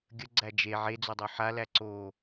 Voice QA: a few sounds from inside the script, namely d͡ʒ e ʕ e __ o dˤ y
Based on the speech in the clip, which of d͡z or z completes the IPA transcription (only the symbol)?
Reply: d͡z